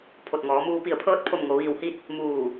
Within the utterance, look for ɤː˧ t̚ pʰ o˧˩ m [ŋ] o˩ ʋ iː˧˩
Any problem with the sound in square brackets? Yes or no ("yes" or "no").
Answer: no